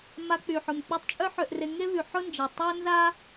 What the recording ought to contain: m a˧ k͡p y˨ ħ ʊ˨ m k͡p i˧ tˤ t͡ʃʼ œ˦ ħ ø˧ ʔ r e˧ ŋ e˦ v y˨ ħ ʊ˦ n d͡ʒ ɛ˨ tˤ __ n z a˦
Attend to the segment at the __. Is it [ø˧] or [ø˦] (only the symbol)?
ø˦